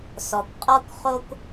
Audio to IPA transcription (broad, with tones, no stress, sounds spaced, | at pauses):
s ɔ˨ kʷ qʼ ɔ˥ kʷ χ o˥ kʷ